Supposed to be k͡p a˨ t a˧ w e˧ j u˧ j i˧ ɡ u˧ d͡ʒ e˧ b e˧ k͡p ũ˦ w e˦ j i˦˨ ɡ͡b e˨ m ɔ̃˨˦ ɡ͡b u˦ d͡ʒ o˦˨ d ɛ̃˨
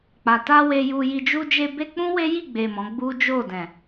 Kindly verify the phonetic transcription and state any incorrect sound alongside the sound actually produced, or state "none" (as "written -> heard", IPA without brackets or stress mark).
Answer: ɡ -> d͡ʒ